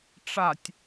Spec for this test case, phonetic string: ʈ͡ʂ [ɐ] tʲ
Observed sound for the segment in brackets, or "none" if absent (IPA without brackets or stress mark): a